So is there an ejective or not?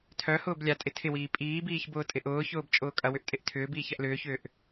yes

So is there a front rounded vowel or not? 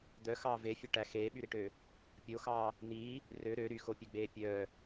yes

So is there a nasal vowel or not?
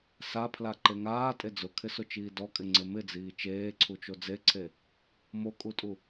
no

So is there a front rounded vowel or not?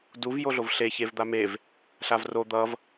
no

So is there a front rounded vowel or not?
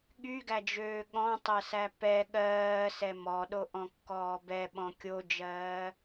yes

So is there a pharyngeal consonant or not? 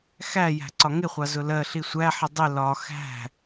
yes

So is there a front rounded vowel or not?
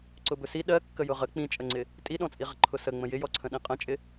no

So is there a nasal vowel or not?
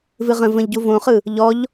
yes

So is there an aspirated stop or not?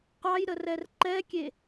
no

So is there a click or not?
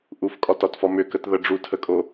no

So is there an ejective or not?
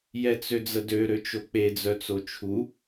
no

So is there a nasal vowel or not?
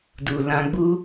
yes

